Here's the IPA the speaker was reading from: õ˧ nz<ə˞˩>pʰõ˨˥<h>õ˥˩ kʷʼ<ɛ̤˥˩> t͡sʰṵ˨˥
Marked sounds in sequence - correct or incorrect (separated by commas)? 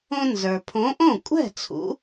correct, incorrect, correct